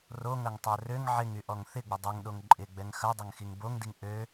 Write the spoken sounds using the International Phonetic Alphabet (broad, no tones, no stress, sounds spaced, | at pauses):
r o ŋ ɐ ŋ tˤ œ r ø ŋ ʕ ɪ ŋ y ʔ ɔ ŋ θ ɪ ɡ͡b ə dˤ ø ŋ ɗ o ŋ ǃʼ ɪ ɡ͡b ɛ ŋ x ɐ dˤ ɐ ŋ x i ŋ b o ŋ d i ŋ ʔ ø